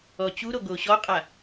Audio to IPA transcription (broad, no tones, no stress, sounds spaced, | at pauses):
ɔ t͡ɕ u ɾ o ɡ o ɕ ɔ qʼ a